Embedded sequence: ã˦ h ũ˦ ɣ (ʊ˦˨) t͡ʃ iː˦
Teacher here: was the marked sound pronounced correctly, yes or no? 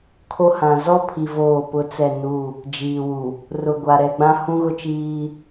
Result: no